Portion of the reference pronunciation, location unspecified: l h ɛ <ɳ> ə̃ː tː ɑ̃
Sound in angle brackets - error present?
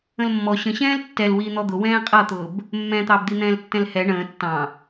no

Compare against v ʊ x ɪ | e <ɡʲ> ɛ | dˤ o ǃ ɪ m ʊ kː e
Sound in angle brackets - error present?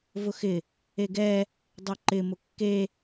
yes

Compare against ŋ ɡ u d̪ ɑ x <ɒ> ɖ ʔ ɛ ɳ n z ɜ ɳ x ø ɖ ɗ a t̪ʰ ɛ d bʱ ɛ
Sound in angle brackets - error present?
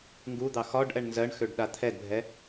no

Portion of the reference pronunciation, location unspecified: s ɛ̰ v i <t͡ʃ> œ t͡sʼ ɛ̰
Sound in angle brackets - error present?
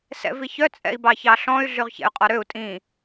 yes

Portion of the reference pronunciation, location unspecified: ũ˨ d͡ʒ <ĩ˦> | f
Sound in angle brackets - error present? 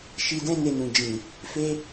yes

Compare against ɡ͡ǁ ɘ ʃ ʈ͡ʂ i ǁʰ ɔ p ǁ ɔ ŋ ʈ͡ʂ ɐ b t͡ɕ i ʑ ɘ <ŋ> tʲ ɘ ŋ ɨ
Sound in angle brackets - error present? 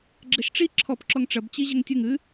no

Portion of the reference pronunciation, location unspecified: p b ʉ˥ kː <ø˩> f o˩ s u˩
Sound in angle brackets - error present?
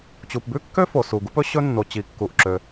yes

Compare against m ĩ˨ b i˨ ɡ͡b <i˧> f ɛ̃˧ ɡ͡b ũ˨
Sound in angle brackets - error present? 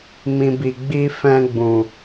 no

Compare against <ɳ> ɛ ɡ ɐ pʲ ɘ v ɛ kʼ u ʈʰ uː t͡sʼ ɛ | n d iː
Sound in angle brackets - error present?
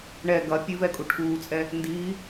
no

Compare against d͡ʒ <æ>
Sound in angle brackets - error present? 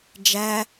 no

